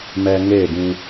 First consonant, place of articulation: labial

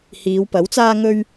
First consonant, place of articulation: glottal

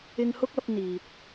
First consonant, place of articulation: velar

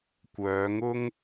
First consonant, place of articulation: velar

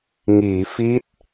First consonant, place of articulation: velar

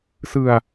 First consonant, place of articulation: alveolar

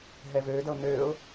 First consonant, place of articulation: glottal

